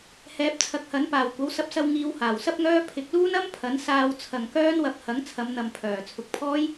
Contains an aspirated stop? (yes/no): yes